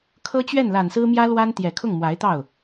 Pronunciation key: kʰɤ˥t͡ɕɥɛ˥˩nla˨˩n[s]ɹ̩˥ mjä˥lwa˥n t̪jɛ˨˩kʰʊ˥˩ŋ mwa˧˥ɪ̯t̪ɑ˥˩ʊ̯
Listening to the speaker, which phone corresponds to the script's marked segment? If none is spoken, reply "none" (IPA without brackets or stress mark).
s